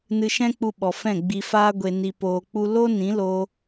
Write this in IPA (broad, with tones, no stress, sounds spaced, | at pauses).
n ɨ˧ ʃ ɛ̃˦ k͡p u˧ ɓ ɔ˨ f ɛ̃˦˨ ɡ͡b i˧ f aː˦ ɡʷ e˧ n i˧ p oː˧ k͡p u˦ l o˦ n ĩ˨˦ l oː˧